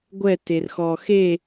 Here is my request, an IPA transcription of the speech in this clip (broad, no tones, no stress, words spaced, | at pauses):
ɡʷɛ terxɔxe